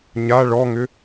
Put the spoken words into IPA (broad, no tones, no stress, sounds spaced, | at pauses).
ɲ a ɭ ɔ ŋ ʏ